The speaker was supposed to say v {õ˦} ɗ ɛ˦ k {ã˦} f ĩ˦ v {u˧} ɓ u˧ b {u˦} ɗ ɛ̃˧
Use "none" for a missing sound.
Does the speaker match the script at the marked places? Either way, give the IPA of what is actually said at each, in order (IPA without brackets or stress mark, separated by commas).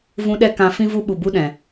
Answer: ũ˦, ã˦, u˦, u˦